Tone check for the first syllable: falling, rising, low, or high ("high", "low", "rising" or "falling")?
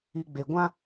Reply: low